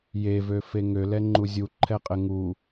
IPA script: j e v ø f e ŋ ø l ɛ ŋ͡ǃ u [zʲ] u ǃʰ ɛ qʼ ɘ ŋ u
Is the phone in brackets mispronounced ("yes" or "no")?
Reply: no